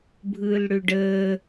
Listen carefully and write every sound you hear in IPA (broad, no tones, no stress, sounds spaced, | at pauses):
bʱ ɯː l ɽ ʏ ɖ əː